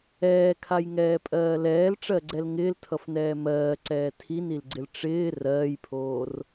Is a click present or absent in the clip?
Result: present